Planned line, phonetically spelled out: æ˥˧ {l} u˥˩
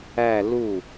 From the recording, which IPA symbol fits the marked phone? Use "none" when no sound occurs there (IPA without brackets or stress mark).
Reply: l